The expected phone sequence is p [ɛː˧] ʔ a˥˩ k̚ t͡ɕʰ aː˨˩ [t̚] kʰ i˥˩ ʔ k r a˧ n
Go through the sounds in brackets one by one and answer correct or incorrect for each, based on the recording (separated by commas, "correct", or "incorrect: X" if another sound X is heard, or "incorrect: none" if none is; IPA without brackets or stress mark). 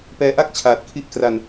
correct, correct